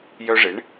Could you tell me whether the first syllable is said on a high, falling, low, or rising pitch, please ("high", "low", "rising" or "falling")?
high